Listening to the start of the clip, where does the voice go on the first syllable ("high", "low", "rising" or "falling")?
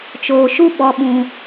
low